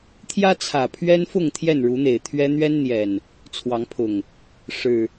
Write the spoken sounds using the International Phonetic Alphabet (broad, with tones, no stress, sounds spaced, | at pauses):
t̪ʰ j ä˦ t͡sʰ ä˨˩ pʰ ɥ ɛ˦ n f ʊ˥˨ ŋ t̪ʰ j ɛ˥˨ n ɻ u˨˦ n̪ e˨˩ ɪ̯ t̪ʰ ɥ ɛ˦ n̪ ɥ ɛ˦ n n̪ j ɛ˨˩ n | t͡sʰ w ɑ˨˦ ŋ pʰ ʊ˨˩ ŋ | ʂ ɻ̩˨˩